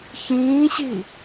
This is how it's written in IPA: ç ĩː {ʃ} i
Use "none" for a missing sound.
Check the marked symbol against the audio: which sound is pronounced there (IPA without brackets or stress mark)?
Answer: ɕ